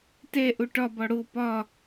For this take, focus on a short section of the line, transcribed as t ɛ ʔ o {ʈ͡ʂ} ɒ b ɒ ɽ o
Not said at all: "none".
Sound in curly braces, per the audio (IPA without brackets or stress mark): ʈ